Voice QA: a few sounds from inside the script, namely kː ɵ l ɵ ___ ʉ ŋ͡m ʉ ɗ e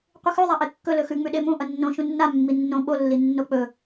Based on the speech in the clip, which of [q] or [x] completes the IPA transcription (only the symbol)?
x